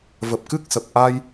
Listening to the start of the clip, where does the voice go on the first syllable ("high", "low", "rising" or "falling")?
low